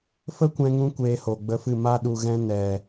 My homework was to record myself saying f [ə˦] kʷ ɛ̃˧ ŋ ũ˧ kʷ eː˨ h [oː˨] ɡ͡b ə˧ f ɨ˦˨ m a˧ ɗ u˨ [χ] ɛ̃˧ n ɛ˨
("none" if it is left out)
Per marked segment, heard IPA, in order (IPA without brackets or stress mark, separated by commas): ə˦, o˨, ɣ